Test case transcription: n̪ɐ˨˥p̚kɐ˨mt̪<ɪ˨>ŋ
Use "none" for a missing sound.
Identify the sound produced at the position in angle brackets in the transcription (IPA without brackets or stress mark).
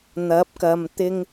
ɪ˥